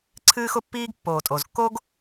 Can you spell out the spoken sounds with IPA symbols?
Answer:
ǀʰ ɨː˥ x ʊ˥ pː iː˥ ɡ pː oː˩ tʼ o˩ z kː o˥ ɡ

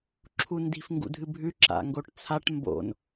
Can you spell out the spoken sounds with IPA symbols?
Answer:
ǁʰ u n d i̤ f ŋ ɡ ṵ dʱ ɨ bʱ ʉ ǁ a̰ ŋ ɡ o ʈ t͡sʰ a ʈ m b o̰ n

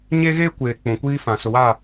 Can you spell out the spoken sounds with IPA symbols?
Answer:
ɲ e˦ ɣ eː˦ kʷ eː˨ k͡p ũ˨ kʷ iː˦ f ã˨ s ʊ˨ w a˦˨

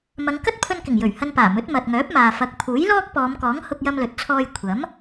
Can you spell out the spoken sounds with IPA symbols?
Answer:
m ɐ˨˧ ŋ k ɐ˥ t̚ pʰ ɵ˧ n k ɪ˨˩ ŋ j ɵ˨˩ ɥ h ɐ˧ n p aː˨˩ m ɵ˨˥ t̚ m ɐ˨ t̚ ŋ œː˨˥ p̚ m aː˨ f ɐ˨ k̚ pʰ uː˨˥ j l ɔː˥ k̚ p ɔː˨˧ m k ɔː˨˥ ŋ h ʊ˧ k̚ j ɐ˧ m l ɵ˨ t̚ t͡sʰ ɔː˧ j kʷʰ ɐ˨˥ m

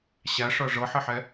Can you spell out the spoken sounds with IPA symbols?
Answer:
ɕ æ ʂ ɤ ʐ ɤ ħ ɘ ħ ɛ

